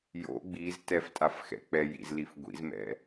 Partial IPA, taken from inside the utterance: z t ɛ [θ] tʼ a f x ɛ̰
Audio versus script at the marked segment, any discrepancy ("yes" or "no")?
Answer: yes